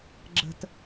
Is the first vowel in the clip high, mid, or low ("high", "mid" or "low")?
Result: mid